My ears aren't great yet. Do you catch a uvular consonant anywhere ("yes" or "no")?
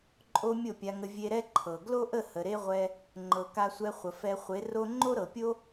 yes